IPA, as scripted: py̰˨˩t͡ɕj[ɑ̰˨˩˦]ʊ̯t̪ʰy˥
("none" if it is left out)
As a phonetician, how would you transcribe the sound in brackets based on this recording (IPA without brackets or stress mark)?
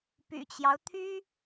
ɑ˦